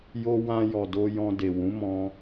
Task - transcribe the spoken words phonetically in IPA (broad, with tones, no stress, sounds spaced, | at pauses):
j o˧ w ã˧ j ɔ˨ d o˧ j ɔ̃˧ d e˨ w ũ˨˦ m ɔ̃˧